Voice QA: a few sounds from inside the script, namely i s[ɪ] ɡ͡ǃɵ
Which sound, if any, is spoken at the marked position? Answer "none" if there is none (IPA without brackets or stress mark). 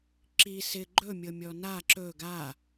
ɪ